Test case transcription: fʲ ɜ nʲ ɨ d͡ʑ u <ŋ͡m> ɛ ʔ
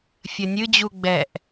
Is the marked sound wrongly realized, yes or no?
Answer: yes